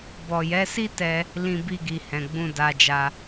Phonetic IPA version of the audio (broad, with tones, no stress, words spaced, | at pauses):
bɔ˨jɛ˨˦si˦tɛ˧ | lĩ˧bi˧ɡi˨ hɛ̃˨ɡ͡bũ˧da˧d͡ʒa˧